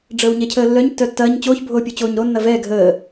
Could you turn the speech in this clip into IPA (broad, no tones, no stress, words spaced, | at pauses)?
ɖ͡ʐəːwɲɛcʰəːlːœɲ tːœtːɐːɲ t͡ɕoːçbʱoːpʲut͡ɕoːɲ ɾo nːɐvɛː ɡʱəː